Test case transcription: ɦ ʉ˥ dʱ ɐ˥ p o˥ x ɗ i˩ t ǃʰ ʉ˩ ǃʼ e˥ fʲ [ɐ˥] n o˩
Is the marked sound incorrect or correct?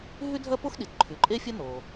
correct